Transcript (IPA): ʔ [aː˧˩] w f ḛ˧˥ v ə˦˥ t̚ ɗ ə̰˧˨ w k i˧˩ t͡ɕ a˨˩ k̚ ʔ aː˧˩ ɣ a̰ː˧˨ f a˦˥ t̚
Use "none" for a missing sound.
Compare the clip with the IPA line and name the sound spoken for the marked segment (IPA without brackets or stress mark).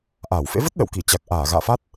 aː˧˩